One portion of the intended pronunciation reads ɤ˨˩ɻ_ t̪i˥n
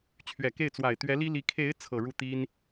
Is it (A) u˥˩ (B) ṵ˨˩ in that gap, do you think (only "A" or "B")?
A